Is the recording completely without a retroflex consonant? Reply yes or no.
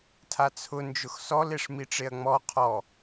no